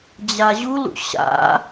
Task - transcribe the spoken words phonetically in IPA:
d͡ʑ a ʑ u l ṵ ɕ a̰

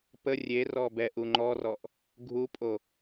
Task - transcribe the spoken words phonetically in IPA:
p ə rʲ e r ɔ b ɛ ʔ u ŋ͡ǃ ɔ r ɔ ʔ | ɡʱ u pʼ o

